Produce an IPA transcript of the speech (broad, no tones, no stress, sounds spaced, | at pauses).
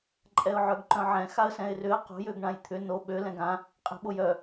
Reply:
ǃʼ ɛ ʊ̯ ʕ œ ɡ ǃ œ̃ ʕ ɛ̃ x a ə̯ s ɛ̃ ɪ̯ r ʏ ə̯ q o̤ j ø ɡ ɳ ã j t̪ʰ ʏ n o ɓ ø l ɛ̃ ɡ ã | qʼ e̤ ɓ o j œ